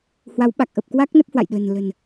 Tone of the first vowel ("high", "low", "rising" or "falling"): rising